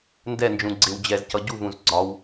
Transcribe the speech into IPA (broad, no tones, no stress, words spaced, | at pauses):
ndɛnd͡ʒũ ɡ͡ǀɪw d͡ʑɛzcʌ ɟuvũz ɡ͡ǀɒw